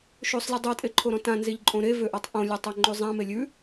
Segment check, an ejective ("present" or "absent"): present